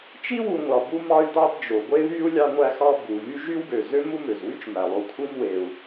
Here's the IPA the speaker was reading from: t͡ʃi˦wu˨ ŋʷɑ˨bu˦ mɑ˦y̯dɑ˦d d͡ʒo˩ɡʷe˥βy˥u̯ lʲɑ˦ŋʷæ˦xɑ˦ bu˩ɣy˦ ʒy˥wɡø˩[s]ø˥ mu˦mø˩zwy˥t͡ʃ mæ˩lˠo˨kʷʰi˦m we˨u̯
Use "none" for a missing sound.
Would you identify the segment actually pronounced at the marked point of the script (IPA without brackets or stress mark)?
z